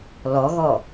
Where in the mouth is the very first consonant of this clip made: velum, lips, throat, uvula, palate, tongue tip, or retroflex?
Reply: tongue tip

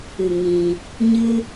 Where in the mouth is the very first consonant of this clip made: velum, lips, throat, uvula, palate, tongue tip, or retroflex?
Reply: velum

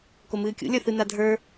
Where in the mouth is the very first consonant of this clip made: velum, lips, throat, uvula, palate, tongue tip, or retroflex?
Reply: velum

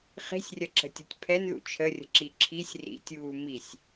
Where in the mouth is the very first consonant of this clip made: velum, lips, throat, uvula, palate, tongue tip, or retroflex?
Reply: uvula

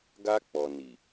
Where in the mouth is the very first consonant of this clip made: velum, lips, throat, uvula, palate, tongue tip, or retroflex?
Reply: velum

